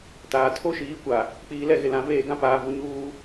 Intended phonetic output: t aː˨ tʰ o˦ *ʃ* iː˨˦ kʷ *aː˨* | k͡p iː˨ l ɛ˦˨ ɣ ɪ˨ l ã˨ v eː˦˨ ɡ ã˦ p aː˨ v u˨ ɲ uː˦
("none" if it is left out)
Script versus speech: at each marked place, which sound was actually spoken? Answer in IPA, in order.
ʃ, a˨

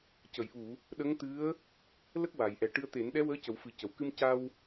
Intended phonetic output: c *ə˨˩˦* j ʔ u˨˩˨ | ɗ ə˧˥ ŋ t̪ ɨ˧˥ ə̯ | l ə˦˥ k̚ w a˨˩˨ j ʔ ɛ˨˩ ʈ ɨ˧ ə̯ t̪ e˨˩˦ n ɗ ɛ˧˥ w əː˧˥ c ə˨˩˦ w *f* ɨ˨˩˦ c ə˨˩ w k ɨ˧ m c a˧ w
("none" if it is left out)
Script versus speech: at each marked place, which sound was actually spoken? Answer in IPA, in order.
ə˨˩˨, f

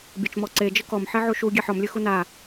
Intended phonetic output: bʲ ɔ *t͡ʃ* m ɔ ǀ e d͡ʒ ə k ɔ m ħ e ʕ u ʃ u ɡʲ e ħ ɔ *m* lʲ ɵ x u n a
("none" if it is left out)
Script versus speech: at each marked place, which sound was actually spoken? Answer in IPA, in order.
t͡ʃ, m

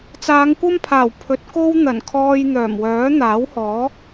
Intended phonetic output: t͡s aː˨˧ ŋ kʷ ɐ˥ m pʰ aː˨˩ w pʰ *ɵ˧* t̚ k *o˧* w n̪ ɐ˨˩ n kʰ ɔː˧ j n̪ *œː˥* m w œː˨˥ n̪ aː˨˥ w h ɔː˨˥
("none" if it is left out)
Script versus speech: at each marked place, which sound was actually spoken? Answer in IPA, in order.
ɵ˨˥, o˥, œː˨˩

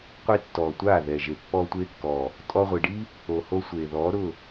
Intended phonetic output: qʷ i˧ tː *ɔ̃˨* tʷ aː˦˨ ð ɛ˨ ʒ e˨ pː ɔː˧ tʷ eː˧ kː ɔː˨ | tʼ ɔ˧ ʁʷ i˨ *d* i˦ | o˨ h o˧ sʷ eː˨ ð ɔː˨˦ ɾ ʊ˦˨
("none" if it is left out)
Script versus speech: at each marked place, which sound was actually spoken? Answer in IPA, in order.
ɔ˨, ɖ

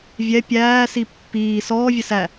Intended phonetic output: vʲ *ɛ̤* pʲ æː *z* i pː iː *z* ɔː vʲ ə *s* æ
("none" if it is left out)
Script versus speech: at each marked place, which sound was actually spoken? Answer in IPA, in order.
ɛ, s, s, s

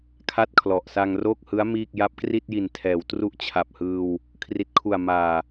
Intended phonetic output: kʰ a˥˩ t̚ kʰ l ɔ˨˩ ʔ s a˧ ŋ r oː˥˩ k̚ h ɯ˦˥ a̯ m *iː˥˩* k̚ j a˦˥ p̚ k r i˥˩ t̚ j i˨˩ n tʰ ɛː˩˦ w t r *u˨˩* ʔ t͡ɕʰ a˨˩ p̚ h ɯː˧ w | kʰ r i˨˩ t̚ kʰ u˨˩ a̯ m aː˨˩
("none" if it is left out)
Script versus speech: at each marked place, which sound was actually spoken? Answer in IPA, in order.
iː˥˩, u˥˩

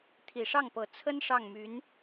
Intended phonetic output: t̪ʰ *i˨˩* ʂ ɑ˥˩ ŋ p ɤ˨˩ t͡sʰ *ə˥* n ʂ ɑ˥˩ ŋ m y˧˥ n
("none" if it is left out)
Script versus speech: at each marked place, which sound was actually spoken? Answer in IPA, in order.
i˨˩, ə˥

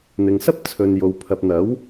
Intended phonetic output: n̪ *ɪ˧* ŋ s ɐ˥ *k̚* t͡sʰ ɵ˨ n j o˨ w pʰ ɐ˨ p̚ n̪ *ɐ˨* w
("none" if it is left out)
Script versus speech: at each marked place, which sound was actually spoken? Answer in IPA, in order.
ɪ˨, p̚, ɐ˨˥

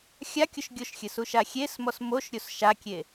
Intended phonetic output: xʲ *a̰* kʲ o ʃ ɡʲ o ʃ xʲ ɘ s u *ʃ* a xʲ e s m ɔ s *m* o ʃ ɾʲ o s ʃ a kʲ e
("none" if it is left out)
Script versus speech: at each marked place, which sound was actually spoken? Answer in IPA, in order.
a, ʃ, m

